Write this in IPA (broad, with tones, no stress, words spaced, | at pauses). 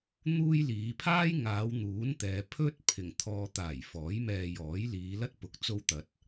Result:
n̪uː˥jliː˨˧ pʰaː˥jŋaː˨˧w n̪uː˨˥nt̪ɛː˨ pʰɵ˥t̚pʰɪ˨˩ŋ t̪ʰɔː˨t̪aː˨˩j fɔː˨˥jmɛː˧jɔː˨˥j liː˨˧lɐ˥t̚pʊ˨k̚ t͡so˧wt̪ɐ˨t̚